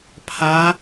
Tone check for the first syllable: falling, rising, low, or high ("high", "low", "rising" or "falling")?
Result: rising